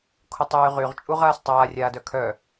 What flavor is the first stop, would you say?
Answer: aspirated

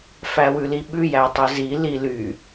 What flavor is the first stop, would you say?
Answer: implosive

